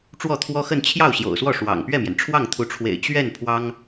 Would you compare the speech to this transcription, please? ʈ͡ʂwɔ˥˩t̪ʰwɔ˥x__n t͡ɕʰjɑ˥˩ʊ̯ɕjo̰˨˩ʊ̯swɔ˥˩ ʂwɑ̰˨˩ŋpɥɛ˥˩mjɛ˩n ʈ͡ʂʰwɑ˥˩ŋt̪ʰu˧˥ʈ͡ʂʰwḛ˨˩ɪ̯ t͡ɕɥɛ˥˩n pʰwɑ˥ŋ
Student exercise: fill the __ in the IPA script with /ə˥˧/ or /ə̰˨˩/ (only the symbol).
ə˥˧